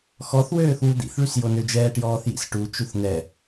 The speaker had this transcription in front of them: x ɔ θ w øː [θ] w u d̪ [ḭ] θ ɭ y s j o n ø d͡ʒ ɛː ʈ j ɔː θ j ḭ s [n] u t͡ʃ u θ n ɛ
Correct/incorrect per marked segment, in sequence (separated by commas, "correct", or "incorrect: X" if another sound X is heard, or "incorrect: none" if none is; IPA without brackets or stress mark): correct, correct, incorrect: ʈ